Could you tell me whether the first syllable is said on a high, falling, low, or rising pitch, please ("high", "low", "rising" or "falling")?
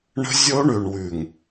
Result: high